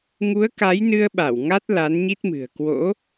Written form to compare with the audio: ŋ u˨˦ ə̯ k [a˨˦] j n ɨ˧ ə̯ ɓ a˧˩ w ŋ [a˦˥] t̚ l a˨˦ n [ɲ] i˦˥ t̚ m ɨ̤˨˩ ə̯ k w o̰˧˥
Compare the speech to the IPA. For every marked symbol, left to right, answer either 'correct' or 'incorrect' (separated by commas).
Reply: correct, correct, correct